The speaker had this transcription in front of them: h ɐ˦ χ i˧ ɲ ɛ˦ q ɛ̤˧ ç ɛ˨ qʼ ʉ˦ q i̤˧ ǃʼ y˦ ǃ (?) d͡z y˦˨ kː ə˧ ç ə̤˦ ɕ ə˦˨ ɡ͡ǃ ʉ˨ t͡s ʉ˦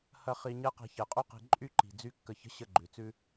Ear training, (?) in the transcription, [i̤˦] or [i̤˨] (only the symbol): i̤˨